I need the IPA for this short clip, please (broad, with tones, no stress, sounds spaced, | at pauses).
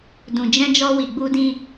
d ũ˨ d͡ʒ ɛ̃˧ d͡ʒ ɔ˧ w i˨ ɡ͡b u˧ d ĩ˧